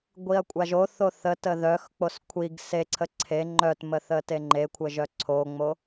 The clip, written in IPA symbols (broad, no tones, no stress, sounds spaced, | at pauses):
ɡʷ i ɐ̯ kʷʼ a ʒ o θ o θ ə t ə ð œ x k͡p o s kʷʰ i ɡ s e ǀʰ ə ǀʰ e ŋ͡ǃ œ t m ə θ ə t e ŋ͡ǃ e kʷʰ ə ʒ œ ǀʰ o ŋ͡m o